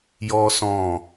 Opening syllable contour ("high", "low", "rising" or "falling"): high